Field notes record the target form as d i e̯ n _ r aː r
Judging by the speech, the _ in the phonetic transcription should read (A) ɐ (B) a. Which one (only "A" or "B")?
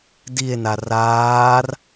B